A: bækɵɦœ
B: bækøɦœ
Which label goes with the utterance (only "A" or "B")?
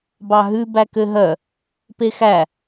B